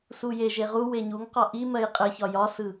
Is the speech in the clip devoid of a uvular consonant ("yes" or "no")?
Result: no